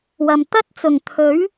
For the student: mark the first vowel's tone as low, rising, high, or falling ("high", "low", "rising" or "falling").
low